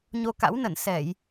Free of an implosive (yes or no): yes